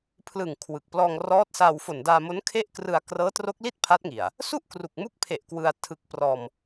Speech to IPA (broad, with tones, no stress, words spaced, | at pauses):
pʰlɯ˨˩ŋ kʰwɯ˨˩k̚ plɔː˧ŋrɔː˦˥t̚saː˧w fo˨˩ndaː˧mo˦˥n kʰe˥˩ʔkrɯ˧a̯ krɤː˦˥tro˦˥k̚li˥˩t̚ pʰa˦˥t̚ŋi˨˩a̯ | su˥˩ʔkru˨˩k̚mu˦˥k̚pʰe˨˩ʔ kwɯ˧a̯tʰɯ˦˥k̚ prɔː˧m